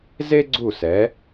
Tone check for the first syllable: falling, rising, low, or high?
high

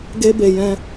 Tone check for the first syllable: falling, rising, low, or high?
high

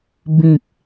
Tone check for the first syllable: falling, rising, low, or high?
low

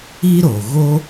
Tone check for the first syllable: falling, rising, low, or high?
high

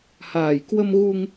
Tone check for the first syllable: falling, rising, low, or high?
low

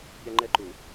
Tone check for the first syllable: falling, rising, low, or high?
high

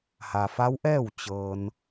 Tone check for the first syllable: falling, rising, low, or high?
low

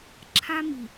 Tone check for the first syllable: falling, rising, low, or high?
high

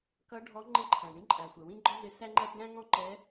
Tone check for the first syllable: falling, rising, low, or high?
rising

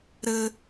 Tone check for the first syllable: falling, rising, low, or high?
high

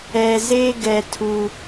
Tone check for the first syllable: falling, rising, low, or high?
low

